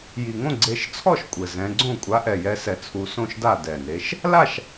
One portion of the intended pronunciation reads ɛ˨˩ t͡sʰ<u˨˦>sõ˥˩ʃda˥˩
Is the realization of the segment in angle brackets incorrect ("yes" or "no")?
no